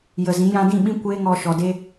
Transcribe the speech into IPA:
j ə˨ z ĩ˨˦ j ã˧ d ĩ˦˨ ɓ ĩ˦ kʷ eː˦ ŋ ɔ˧ ʃ ɔ˨ d e˦

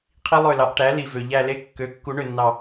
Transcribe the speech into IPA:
qʰ i˦˥ lˠ ø˦˨ l ɑ˩˥ ʔ ʈ æ˩˥ l i˨˩ v ø˨˩ ʎ æ˦˨ l e˦˥ kː ø˩˥ kː u˨˩˦ ɳ ø˨˩ nː ɑ˨˩

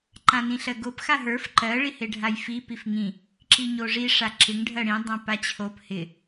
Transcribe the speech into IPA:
ǃ ã n ĩ ɬ ɜ ɡ o p x a ɦ ə˞ f ǃ ɜ ɭ i h e ɖʱ a j f i p i f ŋ ĩ | ǁ i ɲ o ʐ i ʂ a ǁ ɪ ŋ ɖʱ ɜ ɽ ĩ dˤ ã p a t͡ɕʰ o p h ɪ

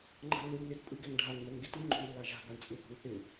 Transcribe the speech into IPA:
ŋ͡ǃ a̤ lː ɯ lː ɪ t pʼ ɯ ɡ ɛ ŋ ɖʱ a ŋ m ɛ ŋ ɡ ɪ t ɯ ŋ͡ǃ o̤ ɳ lː a ʒ a̤ ɡ a ɳ t͡sʼ ɯ θ o̤ ŋ θ ɪ

